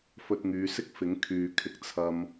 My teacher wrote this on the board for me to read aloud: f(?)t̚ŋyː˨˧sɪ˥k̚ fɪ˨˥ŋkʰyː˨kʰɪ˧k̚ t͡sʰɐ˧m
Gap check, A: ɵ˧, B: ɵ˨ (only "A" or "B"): A